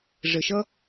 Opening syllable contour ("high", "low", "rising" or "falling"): low